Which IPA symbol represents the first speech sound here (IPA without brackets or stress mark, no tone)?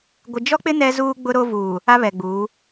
ɡʷ